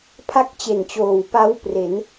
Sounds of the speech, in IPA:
pʰ a˥˩ k̚ t͡ɕ e˨˩ n t͡ɕ oː˨˩ w p a˦˥ w p r e˩˦ n

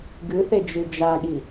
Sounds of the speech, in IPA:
ɡ ɨ θ e d͡ʒ ɨ d͡ʒ a ɠ i

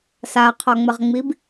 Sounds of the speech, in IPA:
s a qʰ ɒ ŋ͡m ə ʁ ŋ͡m i b

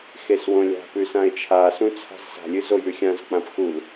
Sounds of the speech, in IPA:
x e s w õ lʲ a̤ p ʉ s ã e̯ t͡ʃʰ a s ũ t͡sʰ a̤ z s a̤ lʲ ɨ z o j ʉ xʲ ã z k͡p ã p x u l

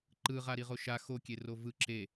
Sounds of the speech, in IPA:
ǃ ɯ ʁ a ɾ i ʁ o ʃ a x o kʲ e r o v ɯ ǁ e

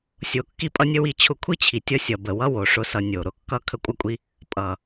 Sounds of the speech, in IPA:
sʲ o˨ kː i˧ pʼ ʌ˦ nʲ ə˦ w i˧ t͡ɕʰ ʊ˧ kʷʰ i˦ t͡ɕʰ i˨ tʲ ʌ˧ sʲ ʌ˨ b ə˨ w ʌ˦ w o˨ ʂ ʊ˦ s ʌ˧ nʲ o˨ ɾ ʊ˨ kː ʌ˦ kʰ ə˦ kʷʼ ʌ˦ kʷʼ i˦ | pʼ ʌ˨

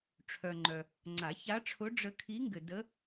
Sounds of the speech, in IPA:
ʈ͡ʂʰ œ˨ ŋ͡ǃ œ˨ | ŋ͡ǀ a˨˩˦ ç a˧˥ ʈ͡ʂʰ ʊ˧˥ ɖ͡ʐ ə˧˥ kʰ i˧˥ ŋ ɡ ɘ˨ d ə˧˥

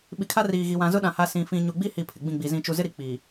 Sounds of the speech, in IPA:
ɓ i˨ kʰ a˦ r iː˨ ɣ i˨ w ã˨ z ʊ˦ ɗ ã˨ h a˦ s ĩ˦ f ĩ˦ ɲ u˨ ɡ͡b i˦ h i˨ pʰ ɪ˨ ɡ͡b ĩ˦˨ ɡ͡b i˨ z ĩ˨ t͡ʃ u˨ z ɪ˦ ɾ i˨ k͡p i˨

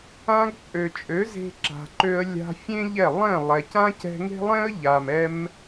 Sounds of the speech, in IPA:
ã˧ ɡ t͡sʼ ø˨ t͡ʃʼ ø˨˦ z e̤˧ ǁ a̤˨ ǃ ø˧ ə̯ lʲ a̤˧ fʲ ẽ˦ ʎ ɛ˦˨ lˠ ɛ̃˦˨ lˠ ɛ˨ c ã˦ c ɛ̤˧ ŋ e̤˦ lˠ ɛ̃˦ ə̯ ʎ a˨ m ɛ˧ m

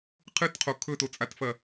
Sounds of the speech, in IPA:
qʰ ɨ t qʰ o kʰ ɵ t o t͡sʼ a t f ɐ

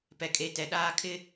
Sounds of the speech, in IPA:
p ɛ˨ kʼ e˨ t ɛ˨ ɗ aː˦ kʰ ɪ˦

